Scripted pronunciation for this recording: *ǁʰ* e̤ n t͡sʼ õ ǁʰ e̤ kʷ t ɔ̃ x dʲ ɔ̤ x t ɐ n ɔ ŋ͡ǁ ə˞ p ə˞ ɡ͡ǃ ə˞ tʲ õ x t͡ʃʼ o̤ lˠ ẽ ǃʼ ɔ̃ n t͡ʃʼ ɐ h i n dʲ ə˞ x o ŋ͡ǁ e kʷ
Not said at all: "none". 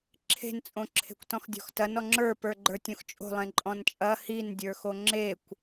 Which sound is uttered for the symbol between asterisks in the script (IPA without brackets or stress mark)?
ǁʰ